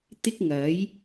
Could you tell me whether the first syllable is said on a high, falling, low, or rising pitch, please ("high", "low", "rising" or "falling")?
high